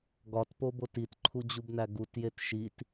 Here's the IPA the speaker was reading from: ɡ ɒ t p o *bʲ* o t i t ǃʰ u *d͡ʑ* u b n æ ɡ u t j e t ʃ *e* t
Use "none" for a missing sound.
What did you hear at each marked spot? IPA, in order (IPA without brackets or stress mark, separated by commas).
b, d͡ʑ, i